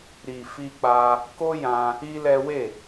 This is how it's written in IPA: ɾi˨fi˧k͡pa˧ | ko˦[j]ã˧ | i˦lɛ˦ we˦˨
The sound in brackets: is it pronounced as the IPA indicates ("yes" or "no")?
yes